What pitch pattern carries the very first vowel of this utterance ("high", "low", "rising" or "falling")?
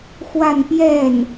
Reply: falling